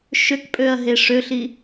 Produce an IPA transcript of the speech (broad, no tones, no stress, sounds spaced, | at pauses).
ʃ ø k pʼ ø ɐ̯ ɦ e ʂ ø ɬ i